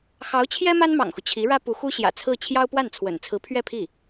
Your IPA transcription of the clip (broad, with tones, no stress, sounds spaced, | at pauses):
x ɑ˧˥ ʊ̯ t͡ɕʰ j ɛ˥ m a˥ n m ɑ̰˨˩ ŋ x u˦ t͡ɕʰ i˧˥ ɻ ä˥ p u˧˥ x u˥ ɕ j ä̰˨˩ t͡sʰ ɹ̩˥˩ t͡ɕʰ j ɑ˥ ʊ̯ p w a˥˩ n t͡sʰ w ə̰˨˩ n t͡sʰ ɹ̩˧˥ pʰ ɥ ɛ˥˧ pʰ i˥˩